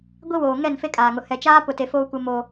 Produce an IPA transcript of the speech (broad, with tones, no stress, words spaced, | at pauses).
ɡʷi˦woː˨ ŋɛ˦˨nfe˦kʼaː˨ŋʊ˨ hɛ˨t͡ʃaː˦pʊ˨te˨ foː˦kʷɪ˦moː˦